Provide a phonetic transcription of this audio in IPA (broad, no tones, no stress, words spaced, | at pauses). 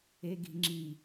eɡi̤ŋ͡ǁi